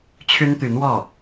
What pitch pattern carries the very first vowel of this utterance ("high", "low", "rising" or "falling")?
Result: high